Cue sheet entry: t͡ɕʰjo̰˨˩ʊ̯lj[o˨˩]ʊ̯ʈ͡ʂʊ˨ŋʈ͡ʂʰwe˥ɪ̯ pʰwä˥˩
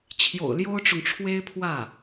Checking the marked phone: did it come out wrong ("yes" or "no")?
yes